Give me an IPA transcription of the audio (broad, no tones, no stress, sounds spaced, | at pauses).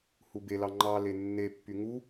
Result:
h u b e l ɑ ŋ͡ǃ ɑ l e nː e pː y ŋ u